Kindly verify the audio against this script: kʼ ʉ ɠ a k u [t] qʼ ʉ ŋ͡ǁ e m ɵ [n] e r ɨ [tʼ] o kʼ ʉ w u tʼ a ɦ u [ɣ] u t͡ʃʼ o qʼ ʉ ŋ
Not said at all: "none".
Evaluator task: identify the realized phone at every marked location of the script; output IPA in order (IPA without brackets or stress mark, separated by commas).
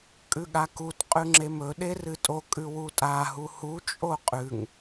t, ɗ, tʼ, h